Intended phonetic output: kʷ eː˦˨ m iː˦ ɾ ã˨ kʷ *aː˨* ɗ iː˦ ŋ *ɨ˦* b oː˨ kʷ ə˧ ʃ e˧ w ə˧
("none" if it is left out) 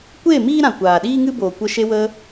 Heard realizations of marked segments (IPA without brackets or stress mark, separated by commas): aː˨, ɨ˦